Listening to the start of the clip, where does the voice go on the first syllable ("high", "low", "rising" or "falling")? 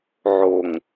low